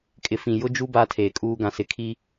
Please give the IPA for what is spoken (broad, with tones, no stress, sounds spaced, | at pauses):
kʼ ɪ˨ f ĩ˨ j ʊ˦ d͡ʒ u˦ b aː˦ tʰ eː˨ kʼ uː˦ ɡ ã˨ s ɪ˨ kʰ i˦